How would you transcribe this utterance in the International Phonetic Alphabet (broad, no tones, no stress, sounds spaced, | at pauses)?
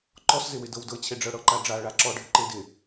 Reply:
ǃ ɔ s z ɪ w ɪ d ɤ w d ɤ t͡ɕʰ e ɖ͡ʐ ɤ ɽ ɤ ǃ a ɖ͡ʐ a ɭ a ǁ ɔ ɖʱ ɪ ǃ e d ɪ